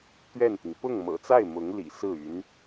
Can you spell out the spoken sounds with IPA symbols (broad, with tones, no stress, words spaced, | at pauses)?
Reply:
t̪ɥɛ˥˩nt̪i˩ŋ pʊ˥˩ŋ mɤ̰˨˩t͡sa˥˩ɪ̯ mʊ˧˥ŋlḭ˨˩ sɹ̩˥˩ y˧˥n